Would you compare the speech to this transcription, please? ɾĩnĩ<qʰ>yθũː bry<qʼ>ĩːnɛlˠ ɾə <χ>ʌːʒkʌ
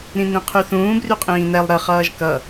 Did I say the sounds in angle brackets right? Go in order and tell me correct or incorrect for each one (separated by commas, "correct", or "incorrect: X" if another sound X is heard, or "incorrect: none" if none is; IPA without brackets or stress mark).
correct, correct, correct